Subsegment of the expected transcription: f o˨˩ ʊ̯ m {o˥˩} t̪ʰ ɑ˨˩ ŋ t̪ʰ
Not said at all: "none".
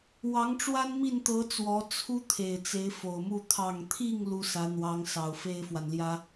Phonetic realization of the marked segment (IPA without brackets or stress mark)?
u˥˩